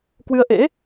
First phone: k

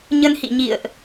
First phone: ɲ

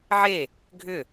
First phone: ʕ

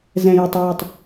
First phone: z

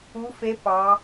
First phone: u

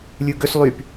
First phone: lʲ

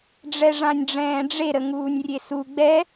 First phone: ɖ͡ʐ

